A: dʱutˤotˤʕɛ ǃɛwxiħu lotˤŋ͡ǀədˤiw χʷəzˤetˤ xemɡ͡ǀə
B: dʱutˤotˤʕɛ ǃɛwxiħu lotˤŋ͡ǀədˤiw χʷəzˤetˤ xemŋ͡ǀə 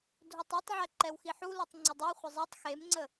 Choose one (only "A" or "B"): B